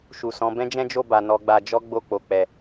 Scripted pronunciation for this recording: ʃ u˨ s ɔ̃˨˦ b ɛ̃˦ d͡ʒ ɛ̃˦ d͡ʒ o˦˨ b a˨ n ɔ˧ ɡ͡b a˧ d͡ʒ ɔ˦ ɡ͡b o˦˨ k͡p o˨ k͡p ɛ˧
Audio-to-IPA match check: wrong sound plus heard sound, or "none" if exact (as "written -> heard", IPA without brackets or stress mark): ɛ˧ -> ɛ˨